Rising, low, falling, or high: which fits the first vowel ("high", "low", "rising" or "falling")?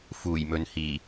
low